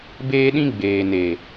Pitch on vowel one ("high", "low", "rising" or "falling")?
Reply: high